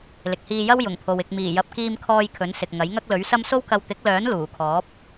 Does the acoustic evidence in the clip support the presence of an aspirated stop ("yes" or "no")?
yes